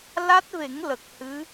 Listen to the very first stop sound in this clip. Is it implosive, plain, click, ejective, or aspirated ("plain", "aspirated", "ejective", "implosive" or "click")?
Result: plain